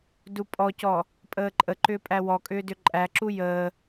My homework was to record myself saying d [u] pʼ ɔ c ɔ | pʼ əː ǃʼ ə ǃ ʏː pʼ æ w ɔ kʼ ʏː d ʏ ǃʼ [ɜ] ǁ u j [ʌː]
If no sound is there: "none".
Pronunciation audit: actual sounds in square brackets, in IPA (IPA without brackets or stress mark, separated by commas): u, æ, əː